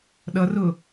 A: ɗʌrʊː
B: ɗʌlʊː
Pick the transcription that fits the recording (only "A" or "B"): A